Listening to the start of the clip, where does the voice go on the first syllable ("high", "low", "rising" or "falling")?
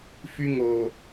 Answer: high